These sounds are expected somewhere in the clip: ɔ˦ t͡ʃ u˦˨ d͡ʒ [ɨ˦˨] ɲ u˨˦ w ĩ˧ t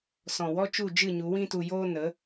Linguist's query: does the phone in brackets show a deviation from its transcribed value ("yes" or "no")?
no